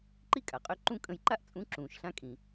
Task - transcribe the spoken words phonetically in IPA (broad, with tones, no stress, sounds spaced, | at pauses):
ǃ i˥ kʼ a˩ qʼ ø˧ ǃ ũ˥ kʼ ə̃˧ j ǃ a˥ ʔ t͡sʼ ũ˧˥ ǁ ũː˩ ʃ ɬ ã˧ kʼ ĩ˩